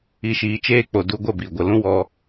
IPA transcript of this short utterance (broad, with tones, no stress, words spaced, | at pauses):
i˨ʃiː˨t͡ʃeː˧ k͡po˨du˧ɡʷə˦˨bi˨ ɡʷə˨lũ˦wɔ˧